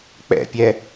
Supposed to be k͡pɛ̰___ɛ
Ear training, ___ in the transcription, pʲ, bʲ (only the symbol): pʲ